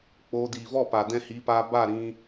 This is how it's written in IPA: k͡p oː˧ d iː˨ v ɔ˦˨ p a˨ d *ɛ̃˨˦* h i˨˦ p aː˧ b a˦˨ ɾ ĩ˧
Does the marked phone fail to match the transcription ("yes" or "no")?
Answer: yes